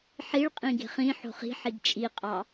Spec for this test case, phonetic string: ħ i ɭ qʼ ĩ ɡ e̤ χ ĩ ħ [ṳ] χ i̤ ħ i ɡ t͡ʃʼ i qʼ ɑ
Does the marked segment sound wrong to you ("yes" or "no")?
yes